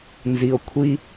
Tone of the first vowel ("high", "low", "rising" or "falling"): low